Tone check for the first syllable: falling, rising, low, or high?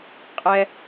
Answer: high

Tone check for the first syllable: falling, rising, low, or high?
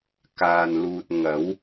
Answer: low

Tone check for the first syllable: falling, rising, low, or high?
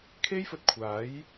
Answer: high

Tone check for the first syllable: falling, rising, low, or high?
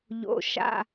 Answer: low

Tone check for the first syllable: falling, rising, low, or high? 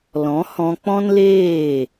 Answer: rising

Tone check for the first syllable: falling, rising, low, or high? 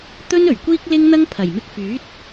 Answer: high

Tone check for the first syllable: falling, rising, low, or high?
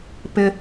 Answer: high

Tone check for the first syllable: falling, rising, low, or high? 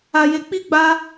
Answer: low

